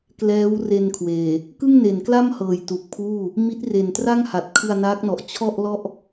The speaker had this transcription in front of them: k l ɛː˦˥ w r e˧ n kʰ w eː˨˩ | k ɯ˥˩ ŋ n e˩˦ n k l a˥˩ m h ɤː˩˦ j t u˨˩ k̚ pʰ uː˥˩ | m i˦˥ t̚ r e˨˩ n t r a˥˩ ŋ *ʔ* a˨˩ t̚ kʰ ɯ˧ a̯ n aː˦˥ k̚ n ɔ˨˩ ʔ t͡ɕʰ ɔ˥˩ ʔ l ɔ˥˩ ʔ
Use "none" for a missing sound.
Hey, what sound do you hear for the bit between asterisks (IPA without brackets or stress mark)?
h